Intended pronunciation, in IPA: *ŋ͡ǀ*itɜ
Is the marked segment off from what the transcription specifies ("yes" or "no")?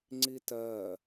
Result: no